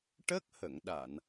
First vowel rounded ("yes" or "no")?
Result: no